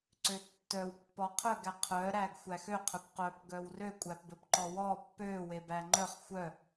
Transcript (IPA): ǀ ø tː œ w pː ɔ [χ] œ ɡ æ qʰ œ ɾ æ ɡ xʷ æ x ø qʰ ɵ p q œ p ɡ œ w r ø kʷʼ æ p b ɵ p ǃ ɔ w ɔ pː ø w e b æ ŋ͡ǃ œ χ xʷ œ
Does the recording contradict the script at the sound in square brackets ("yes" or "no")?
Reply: yes